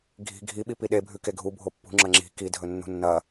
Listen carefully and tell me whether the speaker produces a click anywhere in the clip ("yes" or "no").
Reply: yes